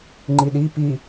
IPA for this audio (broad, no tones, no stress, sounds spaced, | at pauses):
ŋ͡ǃ i ɗ i p i